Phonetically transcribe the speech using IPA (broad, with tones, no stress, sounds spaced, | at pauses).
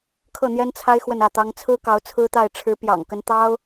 kʰ ɤ˥˩ n̪ j ɛ˥ n t͡sʰ a˥ ɪ̯ x w ə˥˧ n ä˥˩ t̪ ɑ˥ ŋ t͡sʰ ɹ̩˥ k ɑ˧˥ ʊ̯ t͡sʰ ɹ̩˥ t̪ a˥˩ ɪ̯ ʈ͡ʂʰ ɻ̩˧˥ p j ɑ̰˨˩ ŋ k ə˧˥ n t̪ ɑ˥ ʊ̯